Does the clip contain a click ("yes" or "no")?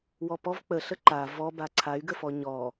yes